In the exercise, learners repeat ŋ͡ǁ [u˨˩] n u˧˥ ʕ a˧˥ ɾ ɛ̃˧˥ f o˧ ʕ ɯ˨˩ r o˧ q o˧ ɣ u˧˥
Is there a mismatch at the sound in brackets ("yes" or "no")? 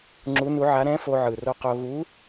yes